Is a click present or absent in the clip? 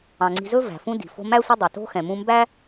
present